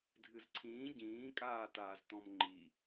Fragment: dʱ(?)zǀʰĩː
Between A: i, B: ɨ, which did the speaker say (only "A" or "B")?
B